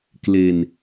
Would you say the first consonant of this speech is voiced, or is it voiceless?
voiceless